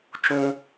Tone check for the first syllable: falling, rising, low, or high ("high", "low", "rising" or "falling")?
high